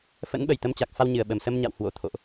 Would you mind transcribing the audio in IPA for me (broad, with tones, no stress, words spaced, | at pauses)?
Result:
fə̰˧˥nɓə˧˩jt̪ə˧mt͡ɕa˨˩k̚ fa˧wɲɨ˨˩ə̯ɓə˨˩m sə˧mɲa̰˧˨w hwo̰˧˥t̪ʰo̰˧˨ʔ